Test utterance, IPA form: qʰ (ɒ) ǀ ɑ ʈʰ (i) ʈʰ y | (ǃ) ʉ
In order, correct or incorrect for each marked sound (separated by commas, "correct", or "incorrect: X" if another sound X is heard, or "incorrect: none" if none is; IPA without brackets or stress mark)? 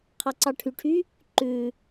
incorrect: ɑ, incorrect: y, correct